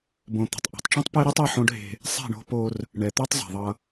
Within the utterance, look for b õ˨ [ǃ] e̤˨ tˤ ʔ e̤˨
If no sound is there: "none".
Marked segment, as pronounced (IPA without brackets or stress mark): t̪